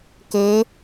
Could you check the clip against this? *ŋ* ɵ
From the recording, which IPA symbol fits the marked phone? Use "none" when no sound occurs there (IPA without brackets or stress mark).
k